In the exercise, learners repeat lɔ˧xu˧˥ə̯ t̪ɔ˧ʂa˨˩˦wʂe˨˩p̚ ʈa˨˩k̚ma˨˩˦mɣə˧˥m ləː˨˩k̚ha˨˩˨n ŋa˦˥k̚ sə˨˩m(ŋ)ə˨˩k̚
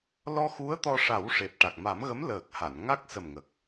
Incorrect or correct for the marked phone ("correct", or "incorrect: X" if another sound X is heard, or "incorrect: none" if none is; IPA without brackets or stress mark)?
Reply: correct